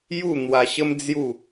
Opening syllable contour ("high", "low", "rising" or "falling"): falling